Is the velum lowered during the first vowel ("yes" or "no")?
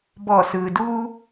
no